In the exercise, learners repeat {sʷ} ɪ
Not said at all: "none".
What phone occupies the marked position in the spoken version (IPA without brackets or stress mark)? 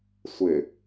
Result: sʷ